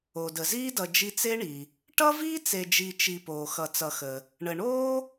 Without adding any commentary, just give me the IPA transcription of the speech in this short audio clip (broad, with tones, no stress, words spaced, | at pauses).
o˩də˩ziː˦dʌ˨ d͡ʒi˦t͡se˥ɳi˩ | ʈʌ˥viː˥t͡se˨d͡ʒi˨ t͡ʃi˨poː˩ xʌ˨t͡sʌ˨xə˩ | ɳə˩ɳoː˥